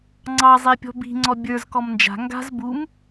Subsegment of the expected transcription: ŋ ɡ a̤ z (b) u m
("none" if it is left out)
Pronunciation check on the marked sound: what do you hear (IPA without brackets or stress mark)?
b